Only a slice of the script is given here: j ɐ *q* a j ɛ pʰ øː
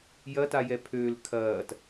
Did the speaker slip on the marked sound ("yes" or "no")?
yes